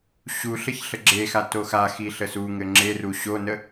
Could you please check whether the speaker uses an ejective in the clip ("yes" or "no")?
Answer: no